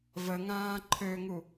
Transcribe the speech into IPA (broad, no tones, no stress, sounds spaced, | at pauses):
v ə ŋ ãː ǃʰ ø ŋ u